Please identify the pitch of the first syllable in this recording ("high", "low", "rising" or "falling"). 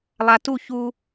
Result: low